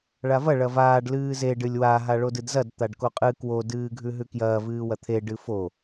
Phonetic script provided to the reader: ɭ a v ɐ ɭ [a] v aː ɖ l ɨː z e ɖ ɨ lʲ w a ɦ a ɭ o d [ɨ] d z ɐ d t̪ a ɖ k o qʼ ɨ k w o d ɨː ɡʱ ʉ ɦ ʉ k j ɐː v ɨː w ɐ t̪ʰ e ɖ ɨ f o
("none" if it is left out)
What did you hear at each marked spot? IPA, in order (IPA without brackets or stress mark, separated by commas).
ɐ, ɨ